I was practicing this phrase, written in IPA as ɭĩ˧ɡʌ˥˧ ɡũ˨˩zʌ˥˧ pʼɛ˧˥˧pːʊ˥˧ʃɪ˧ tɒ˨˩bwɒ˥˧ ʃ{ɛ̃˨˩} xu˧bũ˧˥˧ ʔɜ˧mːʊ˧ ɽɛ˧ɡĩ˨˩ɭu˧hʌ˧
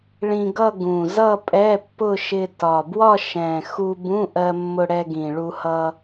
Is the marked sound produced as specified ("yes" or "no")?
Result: yes